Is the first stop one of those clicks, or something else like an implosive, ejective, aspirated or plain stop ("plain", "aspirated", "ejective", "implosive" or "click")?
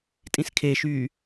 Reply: ejective